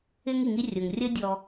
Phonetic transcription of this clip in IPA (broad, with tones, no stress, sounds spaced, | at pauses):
ɪ˥ ŋ i˩ ŋ i˦ rʲ ʊ˩ ŋ rʲ ə˦ dʲ ɔ˨